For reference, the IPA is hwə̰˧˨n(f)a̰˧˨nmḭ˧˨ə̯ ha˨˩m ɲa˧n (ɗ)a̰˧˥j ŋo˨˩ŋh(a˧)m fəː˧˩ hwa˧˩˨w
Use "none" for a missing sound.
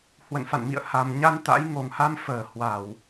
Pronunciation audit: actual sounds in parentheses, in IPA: f, t̪, a˧

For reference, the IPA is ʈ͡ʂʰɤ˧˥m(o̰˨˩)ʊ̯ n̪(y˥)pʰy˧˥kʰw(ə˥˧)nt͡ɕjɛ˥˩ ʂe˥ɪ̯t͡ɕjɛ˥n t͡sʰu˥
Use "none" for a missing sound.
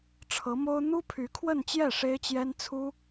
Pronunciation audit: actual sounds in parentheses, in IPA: o˥, u˥, ə˥˧

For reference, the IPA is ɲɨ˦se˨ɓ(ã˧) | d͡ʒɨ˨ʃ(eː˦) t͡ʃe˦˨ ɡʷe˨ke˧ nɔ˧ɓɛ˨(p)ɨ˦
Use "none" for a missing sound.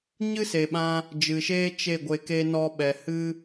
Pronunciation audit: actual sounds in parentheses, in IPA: ã˧, eː˦, h

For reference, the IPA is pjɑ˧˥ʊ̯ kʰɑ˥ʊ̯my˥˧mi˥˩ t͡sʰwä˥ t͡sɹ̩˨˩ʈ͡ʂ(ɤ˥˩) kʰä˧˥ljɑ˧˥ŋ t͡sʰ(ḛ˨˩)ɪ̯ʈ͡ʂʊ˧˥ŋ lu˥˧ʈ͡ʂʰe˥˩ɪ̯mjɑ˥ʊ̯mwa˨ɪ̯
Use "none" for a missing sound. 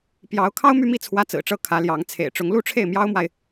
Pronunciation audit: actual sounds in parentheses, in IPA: ɤ˥˩, ḛ˨˩

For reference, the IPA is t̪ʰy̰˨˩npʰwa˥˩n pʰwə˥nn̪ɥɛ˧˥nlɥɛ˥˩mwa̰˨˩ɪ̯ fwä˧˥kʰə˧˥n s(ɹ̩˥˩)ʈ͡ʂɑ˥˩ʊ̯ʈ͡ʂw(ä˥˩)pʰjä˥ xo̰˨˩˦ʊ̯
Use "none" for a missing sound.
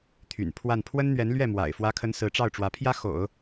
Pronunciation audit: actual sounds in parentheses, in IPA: ɹ̩˧˥, ä˧˥

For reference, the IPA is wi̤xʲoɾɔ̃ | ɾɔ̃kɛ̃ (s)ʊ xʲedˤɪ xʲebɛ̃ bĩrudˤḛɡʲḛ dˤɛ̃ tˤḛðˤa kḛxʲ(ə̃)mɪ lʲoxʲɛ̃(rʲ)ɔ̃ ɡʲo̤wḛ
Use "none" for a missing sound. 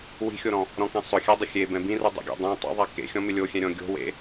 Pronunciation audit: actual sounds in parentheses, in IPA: sˤ, ɔ̃, ɾʲ

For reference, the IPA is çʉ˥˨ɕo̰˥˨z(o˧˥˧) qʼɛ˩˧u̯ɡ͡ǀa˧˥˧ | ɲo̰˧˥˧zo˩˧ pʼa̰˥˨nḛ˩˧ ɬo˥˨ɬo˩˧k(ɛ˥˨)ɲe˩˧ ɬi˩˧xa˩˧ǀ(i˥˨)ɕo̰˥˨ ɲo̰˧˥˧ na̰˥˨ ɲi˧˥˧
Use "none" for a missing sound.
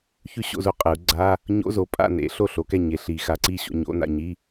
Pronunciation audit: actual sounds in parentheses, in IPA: o˧˥˧, ɛ˥˨, i˥˨

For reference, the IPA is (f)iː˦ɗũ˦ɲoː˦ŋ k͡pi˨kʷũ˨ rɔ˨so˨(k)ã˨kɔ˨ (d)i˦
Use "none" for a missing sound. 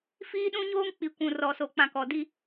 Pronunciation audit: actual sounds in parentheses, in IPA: f, k͡p, d

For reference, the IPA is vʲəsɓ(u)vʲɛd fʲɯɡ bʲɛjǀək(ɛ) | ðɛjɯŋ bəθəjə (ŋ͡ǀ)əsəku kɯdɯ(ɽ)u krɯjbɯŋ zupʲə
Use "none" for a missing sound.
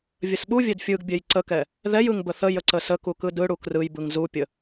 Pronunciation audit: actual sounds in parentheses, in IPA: u, ɛ, ǀ, ɽ

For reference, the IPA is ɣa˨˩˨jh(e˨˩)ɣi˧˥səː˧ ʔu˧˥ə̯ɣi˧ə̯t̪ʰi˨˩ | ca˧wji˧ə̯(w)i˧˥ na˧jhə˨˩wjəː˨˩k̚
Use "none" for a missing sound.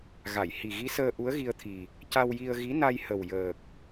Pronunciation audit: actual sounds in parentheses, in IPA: i˨˩, ɣ

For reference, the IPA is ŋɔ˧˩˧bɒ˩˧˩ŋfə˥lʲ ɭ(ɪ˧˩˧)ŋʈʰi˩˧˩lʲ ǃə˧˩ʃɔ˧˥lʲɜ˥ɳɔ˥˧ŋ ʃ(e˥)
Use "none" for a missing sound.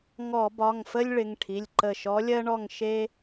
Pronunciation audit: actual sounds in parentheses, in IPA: ɪ˩˧˩, e˥

